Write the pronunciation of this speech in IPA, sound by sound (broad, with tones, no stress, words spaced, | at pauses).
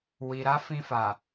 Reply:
wi˨ɾa˨˦fĩ˧ fa˨